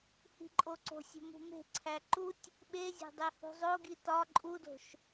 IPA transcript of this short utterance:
hi̤ǃʼoǀo̤sʲo̤ mṳme̤ǀʰæ ǃutʲ | ɓezʲæ̤ dˤehṳzˤoɡi tɒ ǃʼudo̤ʃ

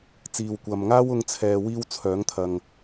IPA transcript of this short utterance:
t͡siː˨wkʷɐ˨mŋaː˥w ʊ˥ŋt͡sʰɛː˧ wiː˥wt͡sʰœː˨˥ŋt̪ʰɐ˨ŋ

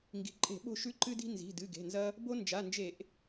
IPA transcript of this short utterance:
ŋɡi̤˩˧˩ǃʼe̤˧˩˧ ɓo̤˦˨ʃʉ˦ǃɨ˦di̤˦ nzi̤˩˧˩dɨ˩˧˩ɡe̤˩˧˩nzɐ˦ | bo˦ nd͡ʒa˩˧˩nd͡ʒe˧˩˧ʔ

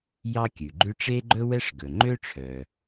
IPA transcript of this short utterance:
jɑ˥kʲʉ˩ɡ͡ǃʉ˥ ʈ͡ʂe˥ɡ͡ǃɵ˥wɛ˥ʂ ɡɵ˩ŋ͡ǃø˥ ʈ͡ʂʰœ˩

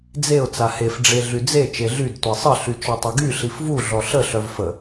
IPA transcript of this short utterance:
d͡zeʊ̯ t͡sahef ɖ͡ʐeɮyd͡ze t͡ʃeɮyd tʷesˤə ɬyt͡ʃɔtˤeɡy ɬifvu ɮɔɬə ɬœvfə

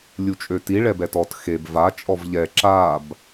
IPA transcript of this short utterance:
lʲut͡ʃʼøti ɭɛbɛtɔt xeb va t͡ʃʼɔvʎɛ ǁab

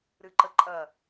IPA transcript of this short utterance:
ɾɨǃəǃʼɐ

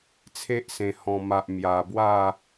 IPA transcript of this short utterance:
t͡sʰe˦ʔsẽ˨˩ hɔ̃˨˩ma˨ʔ mja˨˩bwa˥˧

